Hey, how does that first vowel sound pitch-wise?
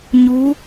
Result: rising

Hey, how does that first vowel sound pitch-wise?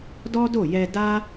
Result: high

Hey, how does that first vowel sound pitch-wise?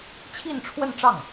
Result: falling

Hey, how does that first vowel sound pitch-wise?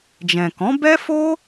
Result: low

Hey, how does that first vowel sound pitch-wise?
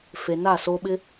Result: low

